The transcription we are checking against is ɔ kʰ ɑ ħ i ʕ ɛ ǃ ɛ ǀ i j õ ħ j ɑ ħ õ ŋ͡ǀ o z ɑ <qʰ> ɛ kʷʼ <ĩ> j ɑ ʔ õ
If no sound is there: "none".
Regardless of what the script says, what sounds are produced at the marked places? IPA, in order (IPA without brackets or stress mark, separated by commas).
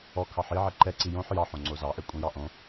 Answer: ʔ, ĩ